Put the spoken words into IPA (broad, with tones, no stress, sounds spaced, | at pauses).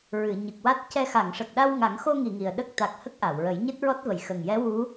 ɹ ɨ˨˩˨ ɲ ɨ˨˩ k̚ w a˦˥ t̚ c ɛ˧ x a˨˩˨ ŋ ʂ ə˨˩ k̚ ɗ a˧ w ŋ a˨˩˦ ŋ x o˧ ŋ i˨˩˨ ŋ i˨˩ ə̯ ɗ ə˦˥ k̚ t̪ a˨˩ k̚ h ə˦˥ k̚ ʔ a˨˩˨ w ɹ ə˨˩˦ j ɲ ɨ˦˥ t̚ ɹ ɔ˦˥ t̚ v ə˨˩˨ j x ə˨˩ ŋ j ɛ˧˥ w u˧˥